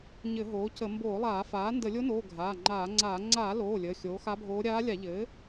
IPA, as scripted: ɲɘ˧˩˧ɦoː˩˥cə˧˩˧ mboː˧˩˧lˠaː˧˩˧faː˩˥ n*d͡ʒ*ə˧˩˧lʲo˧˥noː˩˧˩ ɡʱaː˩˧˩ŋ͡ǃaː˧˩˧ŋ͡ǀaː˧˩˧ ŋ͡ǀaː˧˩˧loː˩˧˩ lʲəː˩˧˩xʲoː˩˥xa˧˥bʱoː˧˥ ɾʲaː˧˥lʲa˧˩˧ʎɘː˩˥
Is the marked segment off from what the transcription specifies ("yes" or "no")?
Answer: yes